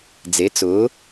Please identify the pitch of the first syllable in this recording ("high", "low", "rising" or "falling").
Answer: rising